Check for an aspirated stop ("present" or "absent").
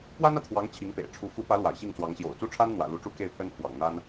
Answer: present